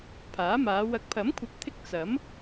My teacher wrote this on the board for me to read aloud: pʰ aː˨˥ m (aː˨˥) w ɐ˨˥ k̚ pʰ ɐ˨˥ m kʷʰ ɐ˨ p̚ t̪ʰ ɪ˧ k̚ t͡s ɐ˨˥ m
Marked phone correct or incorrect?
incorrect: aː˨˧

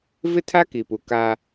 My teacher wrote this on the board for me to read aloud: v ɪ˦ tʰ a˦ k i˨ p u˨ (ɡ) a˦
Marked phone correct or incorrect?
incorrect: k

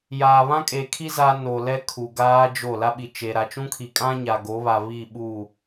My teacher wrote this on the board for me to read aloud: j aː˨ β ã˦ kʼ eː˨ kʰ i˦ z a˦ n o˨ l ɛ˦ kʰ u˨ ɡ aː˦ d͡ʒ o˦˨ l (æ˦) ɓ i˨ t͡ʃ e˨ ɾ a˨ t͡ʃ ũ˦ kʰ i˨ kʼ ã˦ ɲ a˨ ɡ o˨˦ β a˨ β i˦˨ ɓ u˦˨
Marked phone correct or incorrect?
incorrect: a˦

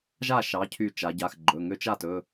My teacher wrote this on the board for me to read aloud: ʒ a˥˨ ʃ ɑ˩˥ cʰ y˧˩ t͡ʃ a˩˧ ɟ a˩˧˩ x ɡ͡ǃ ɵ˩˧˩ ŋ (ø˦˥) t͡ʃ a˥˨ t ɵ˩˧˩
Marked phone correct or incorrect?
correct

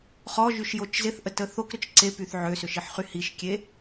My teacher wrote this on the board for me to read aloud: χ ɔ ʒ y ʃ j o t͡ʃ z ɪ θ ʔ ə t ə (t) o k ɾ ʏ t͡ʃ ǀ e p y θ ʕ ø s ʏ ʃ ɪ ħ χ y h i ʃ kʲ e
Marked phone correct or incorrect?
incorrect: θ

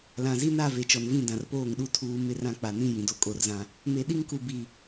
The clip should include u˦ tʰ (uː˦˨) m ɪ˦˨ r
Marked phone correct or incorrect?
incorrect: uː˨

